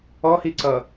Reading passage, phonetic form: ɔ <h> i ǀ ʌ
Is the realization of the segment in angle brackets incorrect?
no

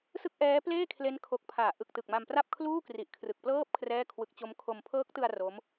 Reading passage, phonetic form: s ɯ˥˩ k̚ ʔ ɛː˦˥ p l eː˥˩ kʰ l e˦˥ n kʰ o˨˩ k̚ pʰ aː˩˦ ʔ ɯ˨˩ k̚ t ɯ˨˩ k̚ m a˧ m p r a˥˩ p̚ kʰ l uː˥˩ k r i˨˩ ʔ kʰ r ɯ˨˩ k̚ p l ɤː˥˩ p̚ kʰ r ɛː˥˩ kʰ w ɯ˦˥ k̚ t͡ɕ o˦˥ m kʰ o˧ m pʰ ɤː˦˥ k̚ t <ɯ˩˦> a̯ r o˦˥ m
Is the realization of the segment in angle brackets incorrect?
yes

